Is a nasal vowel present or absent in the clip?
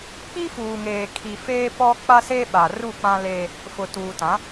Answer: present